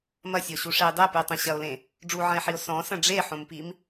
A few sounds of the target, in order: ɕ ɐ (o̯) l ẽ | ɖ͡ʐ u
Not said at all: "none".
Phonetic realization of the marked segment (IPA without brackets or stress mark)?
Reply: o̯